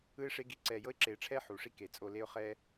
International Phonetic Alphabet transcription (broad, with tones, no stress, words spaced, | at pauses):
ɯ˦ɪ̯ʂe˦ ɡi˦ǀɛ˦˨ jɤ˦ɪ̯ǁe˨˩˦ʈ͡ʂʰɛ˦ ħu˩ʂi˦ ke˩t͡sʼo˦˨le˦ʊ̯ χɛ˦